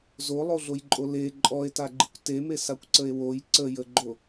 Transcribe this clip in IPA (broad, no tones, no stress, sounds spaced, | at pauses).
z o lˠ o ɮ o j ǃʼ o l e ǃʼ ɔ e̯ t a ɡ͡ǃ ɨ kʷ t e m e s a kʷ ǀ ə e̯ w o j ǀ ə j ə ɡ͡ǃ o